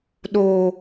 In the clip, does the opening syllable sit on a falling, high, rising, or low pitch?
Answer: low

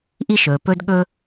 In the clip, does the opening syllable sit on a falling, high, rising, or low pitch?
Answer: high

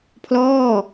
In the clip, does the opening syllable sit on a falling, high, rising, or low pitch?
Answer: falling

